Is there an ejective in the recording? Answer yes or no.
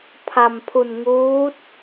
no